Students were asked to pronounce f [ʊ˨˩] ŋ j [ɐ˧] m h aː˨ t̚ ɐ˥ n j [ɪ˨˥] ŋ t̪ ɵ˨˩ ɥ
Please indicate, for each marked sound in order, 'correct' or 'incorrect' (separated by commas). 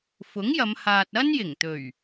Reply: incorrect, incorrect, incorrect